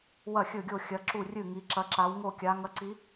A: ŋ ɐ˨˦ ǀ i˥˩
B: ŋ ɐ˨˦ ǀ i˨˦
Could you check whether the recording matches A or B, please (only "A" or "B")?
B